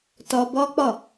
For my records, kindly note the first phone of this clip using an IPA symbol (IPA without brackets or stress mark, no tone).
t